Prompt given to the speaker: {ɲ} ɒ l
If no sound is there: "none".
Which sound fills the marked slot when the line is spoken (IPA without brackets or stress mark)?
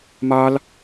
m